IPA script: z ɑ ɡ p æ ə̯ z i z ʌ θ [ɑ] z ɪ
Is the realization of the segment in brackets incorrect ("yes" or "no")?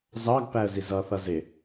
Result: yes